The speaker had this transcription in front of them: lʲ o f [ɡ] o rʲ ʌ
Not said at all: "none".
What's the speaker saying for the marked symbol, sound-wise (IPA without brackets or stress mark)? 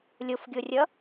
ɡʲ